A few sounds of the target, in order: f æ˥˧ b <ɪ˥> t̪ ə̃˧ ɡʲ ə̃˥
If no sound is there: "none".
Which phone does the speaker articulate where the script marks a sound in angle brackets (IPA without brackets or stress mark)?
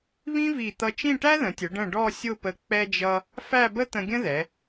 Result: ə˥